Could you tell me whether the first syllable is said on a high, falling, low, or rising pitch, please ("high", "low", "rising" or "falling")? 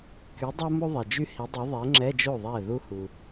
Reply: rising